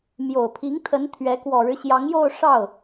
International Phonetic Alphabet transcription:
m j o˨˩ ʊ̯ pʰ i˧˥ ŋ t̪ʰ ə˧˥ n t̪ʰ ɥ ɛ˧˥ k w ɔ˨˩ ɻ ɻ̩˦ ɕ j ɑ˧˥ ŋ j o˥˧ ʊ̯ ʂ ɑ˥˩ ʊ̯

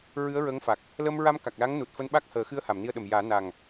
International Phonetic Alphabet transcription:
ɹ ɨ˧˥ ə̯ ɹ ə˧˥ ŋ f a˨˩ k̚ | l ə˧ m ɹ a˧ m k a˨˩ k̚ l aː˧˥ ŋ n u˨˩ t̚ f əː˧ n ɓ a˦˥ k̚ h əː˨˩˦ x ɨ˧˥ ə̯ h a˨˩˨ m n i˧ ə̯ ɗ ə˨˩ m j aː˨˩˦ n a˨˩ ŋ

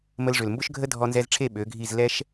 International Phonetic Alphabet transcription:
m ə˧ l ʐ ʏ˨ l m b ʊ˦ ʃ ɡʱ ə˦ dʱ ɔ˧ n z ɛ˧ z ʈ͡ʂʰ e˦˨ ɓ ø˨˦ ɡʱ i˦˨ z l ɛ˦ ʃ

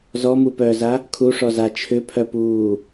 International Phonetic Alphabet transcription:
z ɔ m u p œː z a | kʰ u ʂ ɔ z a t͡ʃʰ ʏ pʰ œ p uː

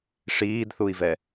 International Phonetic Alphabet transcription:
ʂ iː d θ u i̯ v ɛ

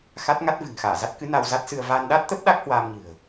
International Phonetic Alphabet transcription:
x a˦˥ t̚ ŋ a˦˥ t̚ v ɨ̤˨˩ ŋ x aː˧˩ z a˦˥ t̚ k ɨ˨˦ n a˧ w z a˦˥ t̚ s ɨ˧ ə̯ v aː˧ n ɗ a˦˥ t̚ t̪ ə˦˥ p̚ ɗ a˦˥ k̚ h w aː˧ m ɲ ɨ̤˨˩ ə̯

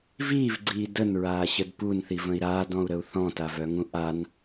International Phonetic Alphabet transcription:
v iː v ɡ͡ǀ iː d ə n ɹ aː ɕ ə d p u n θ i v ə̃ i̯ ɾ aː d ɔ̃ u̯ ɾ ə u̯ θ ɔ̃ t a v œ ŋ ũ ʔ a n

